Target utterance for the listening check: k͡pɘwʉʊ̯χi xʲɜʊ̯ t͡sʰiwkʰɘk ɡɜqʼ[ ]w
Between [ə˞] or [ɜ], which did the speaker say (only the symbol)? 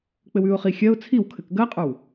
ə˞